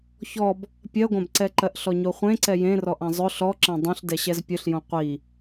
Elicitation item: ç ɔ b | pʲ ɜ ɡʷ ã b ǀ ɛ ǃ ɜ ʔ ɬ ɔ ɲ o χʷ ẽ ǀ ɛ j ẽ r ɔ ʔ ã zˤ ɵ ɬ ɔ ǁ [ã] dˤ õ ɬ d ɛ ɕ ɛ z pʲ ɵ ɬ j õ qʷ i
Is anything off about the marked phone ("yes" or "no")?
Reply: no